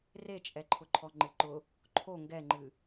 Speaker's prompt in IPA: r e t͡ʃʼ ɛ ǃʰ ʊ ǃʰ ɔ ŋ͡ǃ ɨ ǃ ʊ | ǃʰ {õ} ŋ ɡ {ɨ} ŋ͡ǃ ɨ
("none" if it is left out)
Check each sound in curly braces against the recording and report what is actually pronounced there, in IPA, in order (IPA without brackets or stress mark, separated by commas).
o, ɛ